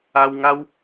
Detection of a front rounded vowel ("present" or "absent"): absent